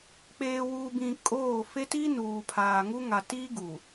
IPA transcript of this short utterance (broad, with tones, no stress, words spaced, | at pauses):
k͡peː˨wuː˨bĩ˨ kʼoː˦˨ fe˦ti˦ nuː˨pʰaː˨ ŋu˦ ŋa˨tiː˦ɡuː˨